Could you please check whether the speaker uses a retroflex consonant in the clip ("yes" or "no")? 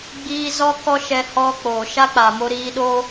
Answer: no